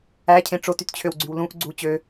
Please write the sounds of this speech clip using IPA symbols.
æ cʰ ẽ ʈ͡ʂ o t y t t͡ɕʰ ø w ɡ͡ǀ y w l ũ ʔ ɡ͡ǀ u t͡ɕ ø

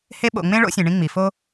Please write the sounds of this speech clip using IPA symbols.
h e˦ ɓ o̰˨ ŋ͡m ẽ˥ ɭ o̰˥ sʲ ẽ˨ ɳ ĩ˦ ŋ͡m i˩ f o˥

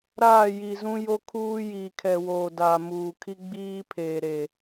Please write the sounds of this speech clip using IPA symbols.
ɾ aː˦˨ j i˨ z ũ˦ j o˦ kʰ uː˦ j iː˨ kʰ ɛ˨ w oː˨ d aː˨ m uː˨ kʰ i˦ ɡ͡b iː˦ pʰ eː˨ ɾ e˨

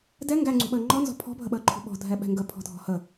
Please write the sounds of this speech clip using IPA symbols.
d ɛ ŋ ɡ æ ŋ͡ǀ ṳ ɓ əː ŋ͡ǃ ɔ n z ɔ̤ pʰ ɔ̤ bʱ ə ɓ əː ǃʰ ṳ ɓ ɔ̤ dʱ ɛ ɓ ɛ̤ ŋ ɡ ə pʰ ɔ̤ dʱ ɔ̤ h ə

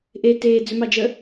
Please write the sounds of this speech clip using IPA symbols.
ʔ e t eː d͡z ʏ m ɑ d͡ʒ ə

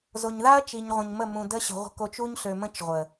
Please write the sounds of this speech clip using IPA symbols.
z o˨ ɲ ð a˦ ɐ̯ t͡ʃ i˨ ɲ ʁʷ ə̃˨ ɲ m ə˦˨ m ũ˨ d ə˦ ɕ ə̤˨ ʁʷ ə̤˨ k o˨ t͡ʃ u˦ ɲ ɬ ø˨ m ə̃˦ t͡ʃ ʁʷ ə˨

